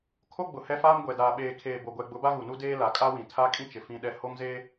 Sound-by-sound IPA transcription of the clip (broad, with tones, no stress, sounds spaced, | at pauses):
kʰ o˦ ɡ͡b ʊ˨ h ɛ˦ f aː˦ m ɡʷ ɛ˨ d aː˨ ɓ eː˨ kʰ eː˨ b o˨ ɡʷ ɛ˨ ɡ͡b ʊ˨˦ b a˦ ɣ u˨ n u˦ d eː˦ l a˨ kʼ a˦ w ĩ˨ tʰ a˦ kʼ ĩ˦ t͡ʃ ɪ˨ f ĩ˦ ɗ ɛ˦ h o˦ ŋ z e˦